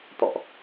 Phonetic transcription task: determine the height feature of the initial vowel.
mid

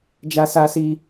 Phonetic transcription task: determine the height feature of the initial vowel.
low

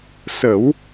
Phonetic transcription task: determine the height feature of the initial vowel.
mid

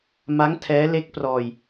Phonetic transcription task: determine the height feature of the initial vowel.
low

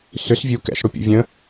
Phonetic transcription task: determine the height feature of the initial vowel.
high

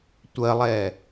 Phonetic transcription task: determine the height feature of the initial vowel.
mid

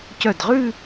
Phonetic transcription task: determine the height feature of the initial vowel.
mid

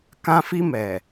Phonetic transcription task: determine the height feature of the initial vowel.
low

